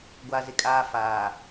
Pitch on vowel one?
high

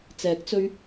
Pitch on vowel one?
rising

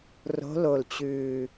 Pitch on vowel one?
rising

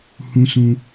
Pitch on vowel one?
low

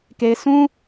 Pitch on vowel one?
high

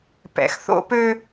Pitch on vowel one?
low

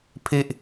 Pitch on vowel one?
low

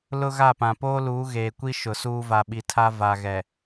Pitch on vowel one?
high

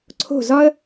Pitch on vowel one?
falling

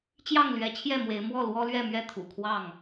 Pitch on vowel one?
falling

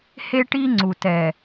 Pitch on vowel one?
high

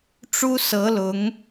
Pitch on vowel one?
high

